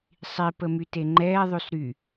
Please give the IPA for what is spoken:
sˤi pəmyteŋ͡ǃɛː ðˤysɾy

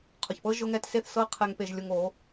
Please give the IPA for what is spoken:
qʰʊ˨çpɤ˦ ʒʊ˦ŋɛ˦t se˦˨θ sɤ˦qʰɛ˧ŋ pe˧ʒlʲo˧ŋo˨˦

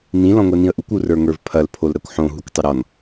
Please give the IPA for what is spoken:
nĩ lɔ̃ŋʷɛnĩə̯ʔukʷ urə˞ŋə˞vpʰɐl pʰolɾɐkʷħõ ɦukʷtˤəɾɔn

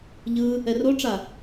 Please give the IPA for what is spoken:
ʎɯ | ɛroʈ͡ʂa

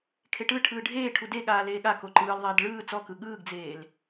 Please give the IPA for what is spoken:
kʰeʈɯʈʰɯː ɖʱeːʈʰu deɠaː leːɠako ǃɯːlðˤeːd ɭɯː t͡sɔkɯ ɠɯːɡd͡zeːl

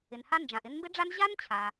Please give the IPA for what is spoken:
ɪ˩nha˦nd͡ʒã˩ʔ ɪ˦nmbɪ˥ɖ͡ʐa˥n ʑa˥nt͡ɕʰa˩

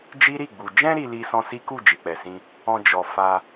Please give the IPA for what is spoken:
d͡ʒi˦ɾi˦˨ɡ͡bu˨ d͡ʒɛ̃˧ɾi˨li˨ sɔ̃˧si˦ku˦˨ d͡ʒi˨k͡pɛ˨sĩ˧ | ɔ̃˧d͡ʒɔ˨ fa˧

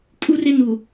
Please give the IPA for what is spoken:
kʼu˦rɪ˦nu˨

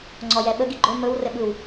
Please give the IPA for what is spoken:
ŋ͡ǀɔjɛɓə ɡiɡ͡ǃɵ mɵw rɘɓɯw

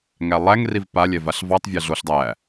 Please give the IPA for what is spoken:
ŋælˠæŋriv palʲɛ vaɬvɑtˤ vʲaɮoɬ dˤæ

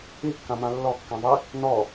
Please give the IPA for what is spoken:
ikːãmã lːɔkːãðˤi | nɔ

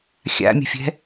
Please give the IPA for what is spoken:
xʲa̰mʲə̤fʲɛ̤

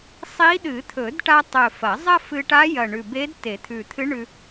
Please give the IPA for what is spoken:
sˤi˧˥ ɗɨ˨˩˦t̪ʰɵ˨˩˦dʈa˧tˤɵ˨˩ fɐ˨˩˦zˤɐ˥ fɨ˧ʈa˧˥jɐ˨˩ ɳʉ˨˩be˧˥d te˨˩˦t̪ʰʉ˨˩t̪ʰɨ˧˥ ɳʉ˧

